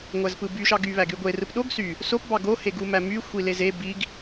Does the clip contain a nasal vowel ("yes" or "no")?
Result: no